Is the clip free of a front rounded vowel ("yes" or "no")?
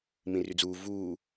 no